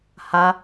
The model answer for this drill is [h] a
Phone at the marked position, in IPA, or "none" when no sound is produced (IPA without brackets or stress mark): h